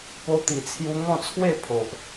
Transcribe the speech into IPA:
po˦t̪i˧t͡sʰju˦ ŋɔ̃˥˧t͡sʰwe˥˧ pʰo˨ʔ

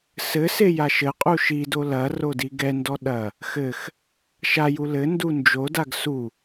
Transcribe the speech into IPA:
sɘ sejaʃɘqʼu ʃido lɐ rodiɡɛndɔ ɗɐ | xɘx | ʃaju lɘndu nd͡ʒodaɡ su

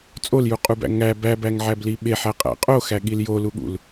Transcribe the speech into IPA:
t͡sʼoljuqʼubæ̰ ŋæ bæbæŋʕæbli ɓeħæqʼæ̰ qʼoxæɠil joluɠṵl

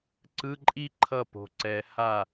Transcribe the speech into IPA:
ǀɯ˧˥˧ǃʼi˥ ǃʰʌ˥˩ po̤˨˩ǀɛ˨˩˦ ha˥˩

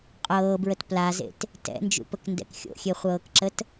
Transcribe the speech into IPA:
qʼɤːbɹət plazḛt | tɛ̰nd͡ʒṵpəkndɛ̰k xʲo̰xʲeχʷɤːkǁət

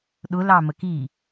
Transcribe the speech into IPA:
ɗʊlɑmək i

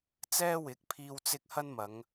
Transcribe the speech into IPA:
t͡sɛː˥wɪ˨˥k̚pʰiː˧w t͡sɪ˧k̚ hɐ˥nmɐ˨˧ŋ

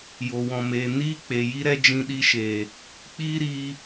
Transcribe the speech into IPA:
jo˨wɔ̃˨meː˨ niː˦k͡pe˨ ji˦ɾɛ˦ d͡ʒĩ˧ɗi˧ʃeː˨ | k͡piː˦ɾiː˧

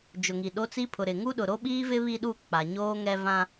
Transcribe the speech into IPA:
d͡ʒʊ˨ŋi˨ɗo˦t͡si˦ pʰʊ˨ɾɪ˨ ŋu˦ɗʊ˨ ɾo˦ɓiː˦vɪ˦ βi˦ɗu˦˨ k͡pa˨ɲoː˦ŋɛ˦ vã˦

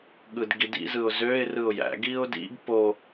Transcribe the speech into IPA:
ɠɯdɡidḭzɯʊ̯ zøɪ̯ rɯʊ̯jæ̰ɡiʊ̯ dḭɡ po

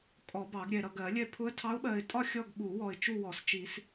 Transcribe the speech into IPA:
kʼɔ˨˩˦ bɑ˨˩˦ɡɾʲɛ˨ɾʌ˨ ɡɜ˨˩˦lʲɛ˥˧ pʰʊ˧˥ə̯tʰɑ˧˥ʊ̯ɓɜ˨ɪ̯tʼɒ˥˧ xʲɔ˥˧ɡɓu˨˩˦wɔ˨ɪ̯ t͡ʃu˥˧wɔ˨˩˦st͡ʃi˨˩˦s

